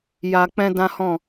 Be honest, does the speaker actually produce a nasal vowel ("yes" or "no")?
yes